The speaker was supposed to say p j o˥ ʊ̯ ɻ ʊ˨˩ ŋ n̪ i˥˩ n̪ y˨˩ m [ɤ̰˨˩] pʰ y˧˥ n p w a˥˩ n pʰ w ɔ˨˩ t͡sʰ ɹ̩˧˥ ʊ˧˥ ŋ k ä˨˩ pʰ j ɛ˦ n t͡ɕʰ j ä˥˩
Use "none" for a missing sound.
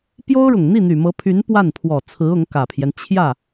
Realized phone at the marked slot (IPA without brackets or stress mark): ɤ˧˥